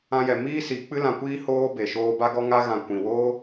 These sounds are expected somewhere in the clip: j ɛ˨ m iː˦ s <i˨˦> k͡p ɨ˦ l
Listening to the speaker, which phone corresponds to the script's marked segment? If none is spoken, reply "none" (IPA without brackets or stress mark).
i˨˦